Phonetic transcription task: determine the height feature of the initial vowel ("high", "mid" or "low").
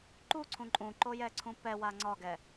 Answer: high